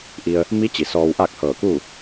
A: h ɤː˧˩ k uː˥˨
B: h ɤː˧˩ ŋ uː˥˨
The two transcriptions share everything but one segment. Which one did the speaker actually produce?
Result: A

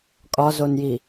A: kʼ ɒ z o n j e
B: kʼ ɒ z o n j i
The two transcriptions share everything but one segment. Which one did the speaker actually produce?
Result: B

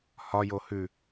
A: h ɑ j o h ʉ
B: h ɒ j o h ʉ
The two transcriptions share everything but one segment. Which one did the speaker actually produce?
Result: B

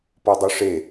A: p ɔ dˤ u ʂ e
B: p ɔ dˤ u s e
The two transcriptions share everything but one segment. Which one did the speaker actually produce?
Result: A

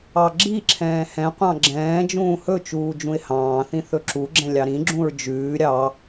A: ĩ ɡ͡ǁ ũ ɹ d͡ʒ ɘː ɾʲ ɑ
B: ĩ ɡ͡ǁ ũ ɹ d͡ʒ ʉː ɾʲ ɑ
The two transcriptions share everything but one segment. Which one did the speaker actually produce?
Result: B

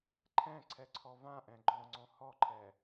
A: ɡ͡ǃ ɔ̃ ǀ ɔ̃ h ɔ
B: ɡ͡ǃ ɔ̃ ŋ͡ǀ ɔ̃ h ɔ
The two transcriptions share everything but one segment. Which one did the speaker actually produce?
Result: B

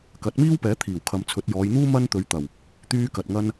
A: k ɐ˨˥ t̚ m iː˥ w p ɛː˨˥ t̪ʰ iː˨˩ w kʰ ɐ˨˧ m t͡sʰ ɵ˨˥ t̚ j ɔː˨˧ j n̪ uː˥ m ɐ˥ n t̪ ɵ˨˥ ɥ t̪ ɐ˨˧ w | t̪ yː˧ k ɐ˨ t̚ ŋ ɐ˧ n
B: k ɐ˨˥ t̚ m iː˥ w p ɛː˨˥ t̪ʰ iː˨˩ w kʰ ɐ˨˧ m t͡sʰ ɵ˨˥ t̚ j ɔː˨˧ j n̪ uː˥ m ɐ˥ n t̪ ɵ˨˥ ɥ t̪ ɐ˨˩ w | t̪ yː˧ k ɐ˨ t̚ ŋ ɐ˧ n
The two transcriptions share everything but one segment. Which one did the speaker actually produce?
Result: B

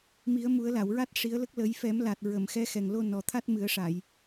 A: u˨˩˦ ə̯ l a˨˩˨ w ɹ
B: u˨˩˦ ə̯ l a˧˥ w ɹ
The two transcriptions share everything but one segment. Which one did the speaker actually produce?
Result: A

